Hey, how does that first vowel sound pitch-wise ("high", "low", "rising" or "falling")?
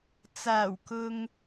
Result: low